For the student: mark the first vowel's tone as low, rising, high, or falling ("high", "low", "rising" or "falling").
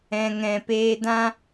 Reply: low